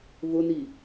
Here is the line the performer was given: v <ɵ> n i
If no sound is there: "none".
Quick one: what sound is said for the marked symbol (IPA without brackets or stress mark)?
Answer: ʊ